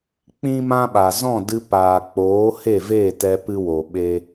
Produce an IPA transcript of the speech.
k͡p ĩ˦ m ã˦ ɓ a˨ z ɔ̃˦˨ d ɨ˧ p aː˨ k͡p oː˨˦ h e˦˨ v e˦˨ t ɛ˧ p ɨ˦ w o˨ ɓ e˦

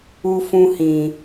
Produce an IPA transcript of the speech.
u˧ f ũ˧ h ĩ˨

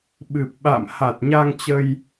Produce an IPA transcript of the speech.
ɓ ɨ˨˩ p̚ ɓ a̰ː˧˨ m h a˨˩ t̚ ɲ a˧ ŋ t͡ɕ ə˧ j

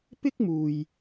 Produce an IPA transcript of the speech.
p ɪ˥ k̚ m uː˨ j

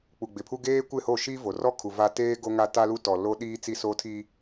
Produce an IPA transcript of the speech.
k͡p u˨ ɡ͡b ɪ˨ pʰ u˦ ɡ eː˦ kʷ ɪ˦˨ h o˦˨ ʃ i˦ v o˨ r ɔ˦ kʰ u˨ v a˦ t eː˦ ɡ o˦ ŋ a˦ t a˦ l u˦ t ɔ˨ l o˦ ɗ iː˦ t͡s i˦ s o˦ tʰ i˦

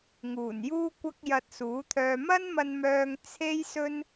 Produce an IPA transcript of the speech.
ŋ uː˨˩ n j uː˥ kʷ ɐ˥ k̚ j ɐ˧ t̚ s uː˨˥ t̪ʰ œː˧ m ɐ˥ n m ɐ˧ n m œː˧ ŋ t͡sʰ e˥ j s ɵ˥ n

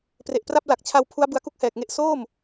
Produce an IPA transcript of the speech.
p r e˨˩ ʔ p r a˥˩ p̚ l a˨˩ k̚ t͡ɕʰ a˧ w pʰ u˦˥ a̯ b ɯ˧ a̯ k u˥˩ k̚ h ɛː˨˩ k̚ ŋ e˥˩ ʔ s oː˥˩ m

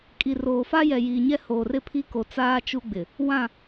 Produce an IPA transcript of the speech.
kʼ i˨ r oː˨ f a˦ j ɛ˨ j iː˨ ɲ ɛ˦ h oː˨ r ɪ˦ pʰ i˦ k o˨ t͡s aː˦ t͡ʃ u˦ ɡ͡b ɪ˨ | w ã˦˨

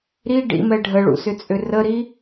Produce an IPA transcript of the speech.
ɾ i ɖ ḭ m ɛ ɖʱ ə ɭ ṵ s ʏ t͡sʼ ʏ r ə ɾ i

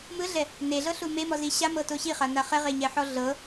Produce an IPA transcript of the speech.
m ɯ ɮ ɛ | n e ɮ ɤ ɬ u m e m ɔ z i ɕ a m ɤ t o ɕ i χ a n a χ ɛ ʁ e ɲ ɛ ħ ɔ ɮ ɤ

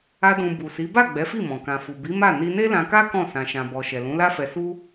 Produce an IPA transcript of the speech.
a˧ d ũ˨ b u˨ s i˨˦ b a˦˨ ɡ͡b ɛ˨˦ f i˦˨ m ɔ̃˨ k ã˨ f u˨ b i˨˦ m a˦˨ n i˧ n e˦ l ã˧ k a˦ k ɔ̃˦˨ s ã˨ ʃ ã˨ b ɔ˨ ʃ ɛ˨ l ũ˨˦ l a˦ f ɛ˧ s u˦

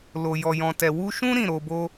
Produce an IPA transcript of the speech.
l o˨ j ɔ˨ j ɔ̃˨ t ɛ˨ w u˧ ʃ ũ˦ ɾ ĩ˦˨ ɾ o˧ b o˦

